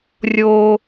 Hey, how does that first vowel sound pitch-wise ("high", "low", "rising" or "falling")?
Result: high